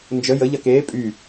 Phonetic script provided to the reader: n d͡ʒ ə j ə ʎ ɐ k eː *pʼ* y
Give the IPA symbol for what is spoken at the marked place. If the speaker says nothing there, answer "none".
pʼ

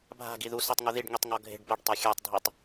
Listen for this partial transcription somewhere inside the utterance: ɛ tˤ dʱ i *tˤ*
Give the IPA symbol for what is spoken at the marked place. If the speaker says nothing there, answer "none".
tˤ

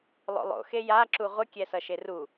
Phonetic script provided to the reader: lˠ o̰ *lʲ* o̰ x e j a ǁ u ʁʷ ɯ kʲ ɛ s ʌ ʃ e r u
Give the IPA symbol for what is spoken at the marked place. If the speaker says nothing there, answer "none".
lˠ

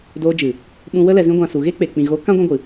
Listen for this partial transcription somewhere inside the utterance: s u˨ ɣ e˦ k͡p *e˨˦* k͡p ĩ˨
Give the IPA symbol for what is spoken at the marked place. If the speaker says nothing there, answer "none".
e˨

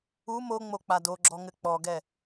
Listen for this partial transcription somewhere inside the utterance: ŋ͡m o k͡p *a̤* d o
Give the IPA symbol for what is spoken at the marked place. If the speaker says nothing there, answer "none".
a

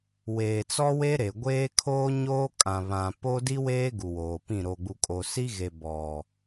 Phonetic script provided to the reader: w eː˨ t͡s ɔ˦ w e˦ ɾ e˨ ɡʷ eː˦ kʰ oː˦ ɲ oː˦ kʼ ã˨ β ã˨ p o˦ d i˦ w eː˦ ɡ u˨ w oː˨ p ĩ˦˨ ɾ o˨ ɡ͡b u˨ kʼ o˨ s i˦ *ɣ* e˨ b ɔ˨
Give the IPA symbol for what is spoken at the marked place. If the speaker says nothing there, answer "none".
ɣ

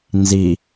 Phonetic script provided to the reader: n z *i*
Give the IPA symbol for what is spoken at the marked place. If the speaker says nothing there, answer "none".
i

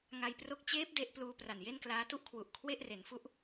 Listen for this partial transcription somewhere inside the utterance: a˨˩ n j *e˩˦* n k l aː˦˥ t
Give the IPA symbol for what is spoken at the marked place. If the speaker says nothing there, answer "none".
e˥˩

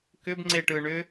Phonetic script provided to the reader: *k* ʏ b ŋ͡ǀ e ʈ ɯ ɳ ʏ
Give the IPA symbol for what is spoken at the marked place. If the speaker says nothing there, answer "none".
k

